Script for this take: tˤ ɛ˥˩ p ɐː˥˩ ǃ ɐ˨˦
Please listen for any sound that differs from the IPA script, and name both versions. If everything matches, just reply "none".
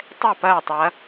ǃ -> tˤ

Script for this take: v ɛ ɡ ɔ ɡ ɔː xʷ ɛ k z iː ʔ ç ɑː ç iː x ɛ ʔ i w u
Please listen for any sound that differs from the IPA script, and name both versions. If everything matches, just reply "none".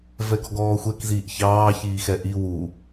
none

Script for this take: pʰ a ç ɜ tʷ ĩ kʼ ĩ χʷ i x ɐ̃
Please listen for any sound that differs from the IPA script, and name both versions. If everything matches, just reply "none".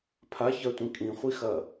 ɐ̃ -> ɐ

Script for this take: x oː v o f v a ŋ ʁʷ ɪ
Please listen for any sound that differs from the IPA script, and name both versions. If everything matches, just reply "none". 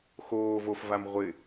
ŋ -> m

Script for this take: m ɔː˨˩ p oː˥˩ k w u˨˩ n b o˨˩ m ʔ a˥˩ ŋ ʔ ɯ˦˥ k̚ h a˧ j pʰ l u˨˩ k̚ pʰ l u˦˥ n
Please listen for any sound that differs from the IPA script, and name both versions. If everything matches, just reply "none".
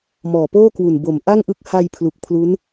none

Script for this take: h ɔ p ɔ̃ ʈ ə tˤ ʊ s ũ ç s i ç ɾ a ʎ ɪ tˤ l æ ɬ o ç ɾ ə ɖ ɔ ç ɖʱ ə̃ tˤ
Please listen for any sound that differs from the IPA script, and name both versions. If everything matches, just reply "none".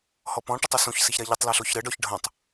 æ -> a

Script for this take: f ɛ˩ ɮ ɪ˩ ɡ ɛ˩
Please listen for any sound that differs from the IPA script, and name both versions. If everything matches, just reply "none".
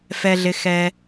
ɡ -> x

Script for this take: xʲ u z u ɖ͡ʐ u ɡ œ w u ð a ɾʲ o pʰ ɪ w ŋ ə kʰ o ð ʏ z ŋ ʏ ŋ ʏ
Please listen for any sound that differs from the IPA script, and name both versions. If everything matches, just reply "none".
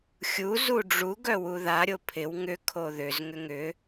ə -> ʏ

